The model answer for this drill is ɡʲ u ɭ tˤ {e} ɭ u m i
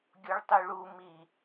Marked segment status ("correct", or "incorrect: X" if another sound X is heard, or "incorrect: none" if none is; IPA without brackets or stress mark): incorrect: y